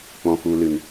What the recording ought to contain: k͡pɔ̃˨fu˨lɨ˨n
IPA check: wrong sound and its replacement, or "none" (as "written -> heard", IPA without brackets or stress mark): none